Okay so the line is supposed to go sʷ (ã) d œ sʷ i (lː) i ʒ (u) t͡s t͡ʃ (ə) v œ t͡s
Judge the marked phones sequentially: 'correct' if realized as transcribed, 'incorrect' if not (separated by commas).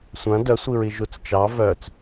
correct, incorrect, correct, incorrect